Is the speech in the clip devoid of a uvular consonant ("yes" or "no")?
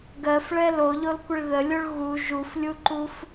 yes